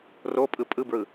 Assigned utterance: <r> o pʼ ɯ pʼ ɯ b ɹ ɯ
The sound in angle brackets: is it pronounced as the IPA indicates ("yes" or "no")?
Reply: yes